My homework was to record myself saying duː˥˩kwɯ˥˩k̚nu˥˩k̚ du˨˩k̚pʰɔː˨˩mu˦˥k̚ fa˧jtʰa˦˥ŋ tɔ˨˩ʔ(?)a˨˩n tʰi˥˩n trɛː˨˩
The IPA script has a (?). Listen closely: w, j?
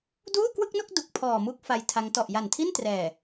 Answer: j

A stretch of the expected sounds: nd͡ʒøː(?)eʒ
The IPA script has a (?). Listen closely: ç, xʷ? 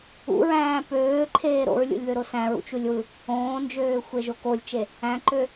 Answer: xʷ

